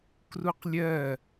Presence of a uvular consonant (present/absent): present